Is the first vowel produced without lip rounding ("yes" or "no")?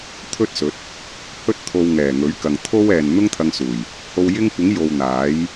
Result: no